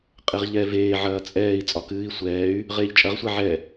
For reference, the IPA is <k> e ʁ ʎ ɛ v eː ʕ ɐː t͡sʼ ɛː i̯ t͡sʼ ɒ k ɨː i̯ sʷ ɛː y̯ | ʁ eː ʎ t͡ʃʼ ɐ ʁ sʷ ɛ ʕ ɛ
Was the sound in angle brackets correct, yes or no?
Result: no